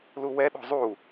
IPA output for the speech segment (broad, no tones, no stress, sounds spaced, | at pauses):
l u w ɛ ɗ o̤ zˤ u